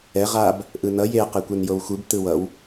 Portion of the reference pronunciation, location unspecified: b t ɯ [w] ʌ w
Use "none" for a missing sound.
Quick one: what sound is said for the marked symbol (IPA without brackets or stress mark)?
w